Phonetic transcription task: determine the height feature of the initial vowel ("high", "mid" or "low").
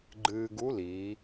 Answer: high